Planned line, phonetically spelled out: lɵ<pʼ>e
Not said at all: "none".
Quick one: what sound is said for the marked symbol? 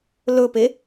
p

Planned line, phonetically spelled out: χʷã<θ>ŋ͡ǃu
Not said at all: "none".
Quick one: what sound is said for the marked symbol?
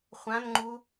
n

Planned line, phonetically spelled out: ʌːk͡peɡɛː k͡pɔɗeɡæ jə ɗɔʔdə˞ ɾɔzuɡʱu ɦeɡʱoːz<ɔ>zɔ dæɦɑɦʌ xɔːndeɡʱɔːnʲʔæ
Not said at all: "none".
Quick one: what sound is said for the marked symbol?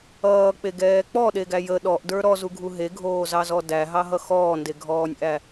ɑ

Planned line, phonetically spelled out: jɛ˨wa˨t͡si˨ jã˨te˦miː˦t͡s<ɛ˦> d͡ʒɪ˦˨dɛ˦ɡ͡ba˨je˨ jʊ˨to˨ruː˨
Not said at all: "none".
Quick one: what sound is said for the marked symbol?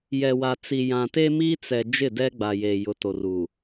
ɛ˨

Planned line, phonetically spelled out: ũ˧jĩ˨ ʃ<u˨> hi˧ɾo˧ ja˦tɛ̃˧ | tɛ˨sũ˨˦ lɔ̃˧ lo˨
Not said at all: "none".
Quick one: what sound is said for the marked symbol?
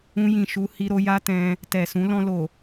u˧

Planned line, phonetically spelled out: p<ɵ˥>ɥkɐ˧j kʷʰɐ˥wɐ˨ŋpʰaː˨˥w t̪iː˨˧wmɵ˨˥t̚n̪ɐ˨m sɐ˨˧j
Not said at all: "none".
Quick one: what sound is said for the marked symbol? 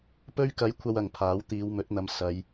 ɵ˥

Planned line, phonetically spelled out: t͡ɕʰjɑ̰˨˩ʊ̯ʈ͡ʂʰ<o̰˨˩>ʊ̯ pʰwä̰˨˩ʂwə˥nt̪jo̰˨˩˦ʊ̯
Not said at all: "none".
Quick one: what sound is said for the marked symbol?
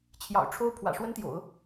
o˥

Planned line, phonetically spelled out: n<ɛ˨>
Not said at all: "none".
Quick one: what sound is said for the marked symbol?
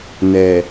ɛ˨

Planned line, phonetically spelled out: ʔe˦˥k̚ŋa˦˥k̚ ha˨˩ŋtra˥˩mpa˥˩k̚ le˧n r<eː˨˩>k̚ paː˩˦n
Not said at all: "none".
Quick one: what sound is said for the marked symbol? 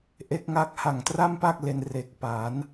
e˨˩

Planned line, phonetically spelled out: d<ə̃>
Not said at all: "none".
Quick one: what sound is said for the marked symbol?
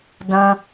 ə̃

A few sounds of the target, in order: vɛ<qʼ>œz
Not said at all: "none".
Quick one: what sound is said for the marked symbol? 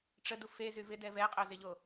qʼ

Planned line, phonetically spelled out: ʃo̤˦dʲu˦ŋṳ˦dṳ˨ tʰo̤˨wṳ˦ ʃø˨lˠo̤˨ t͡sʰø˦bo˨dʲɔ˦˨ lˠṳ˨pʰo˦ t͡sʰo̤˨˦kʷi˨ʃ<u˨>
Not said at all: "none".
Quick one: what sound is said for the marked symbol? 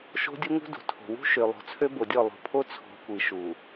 u˨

